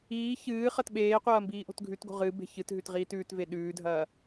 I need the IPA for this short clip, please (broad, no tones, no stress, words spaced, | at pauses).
iː çɨː χɐtɓeːqʷɐː mbiːʔo̤tɡʱʉtɡo̤ ʁɨ be̤çɨtɦʉt ʁiːtʉːtve ɗʉːdʱɐː